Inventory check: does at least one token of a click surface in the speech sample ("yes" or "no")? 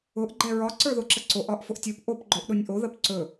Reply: yes